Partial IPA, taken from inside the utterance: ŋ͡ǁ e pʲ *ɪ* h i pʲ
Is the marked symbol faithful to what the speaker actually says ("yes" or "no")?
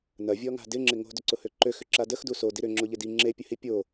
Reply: no